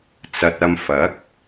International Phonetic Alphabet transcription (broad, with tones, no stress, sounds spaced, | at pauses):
t͡s ɐ˨ t̚ ɐ˧ m f ɐ˨˥ k̚